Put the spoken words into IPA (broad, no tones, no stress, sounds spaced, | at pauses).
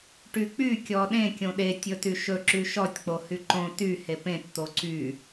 ʈ y k͡p y kʲ ɔ ɗ ẽ kʲ õ ɗ e tʲ ɵ t y ʃ ɵ ǁ y ʃ ɔ tʲ k͡p o h y ǃ õ t y h e p ẽ t t̪ o ǀ y